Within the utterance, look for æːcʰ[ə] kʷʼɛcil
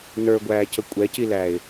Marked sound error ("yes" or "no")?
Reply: no